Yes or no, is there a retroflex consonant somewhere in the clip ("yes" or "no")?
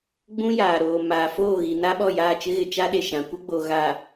no